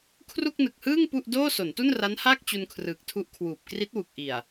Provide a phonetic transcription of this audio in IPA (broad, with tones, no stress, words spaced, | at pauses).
kʰru˥˩k̚nɯ˨˩k̚hɯː˥˩ŋ pu˥˩ʔ doː˥˩so˩˦ntu˥˩n ra˦˥nhaː˥˩k̚ t͡ɕu˧nkʰrɯː˨˩k̚tʰu˦˥ʔkʰwuː˨˩p̚ kri˦˥t̚wu˨˩k̚ʔi˨˩a̯